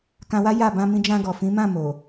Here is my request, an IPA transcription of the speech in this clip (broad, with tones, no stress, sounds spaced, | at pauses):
k ã˧ w a˦ j a˦˨ b ã˧ m ĩ˧ d͡ʒ ã˧ ɡ ɔ˨ f ĩ˨˦ m ã˦˨ m o˨